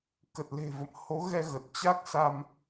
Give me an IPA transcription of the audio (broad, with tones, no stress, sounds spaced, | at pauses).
k ə˨˩ t̚ l e̤˨˩ v ə̰˧˨ m h o˨˦ ɣ ɛ˧ ɣ ə˨˩ t̚ t͡ɕ a˦˥ k̚ s a˧ m